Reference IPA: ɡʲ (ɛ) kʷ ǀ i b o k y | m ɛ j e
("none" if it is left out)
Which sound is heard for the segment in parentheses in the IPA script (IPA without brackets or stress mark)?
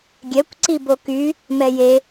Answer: ɛ